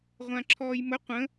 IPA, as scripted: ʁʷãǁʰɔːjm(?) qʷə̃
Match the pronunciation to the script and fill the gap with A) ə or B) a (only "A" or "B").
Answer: A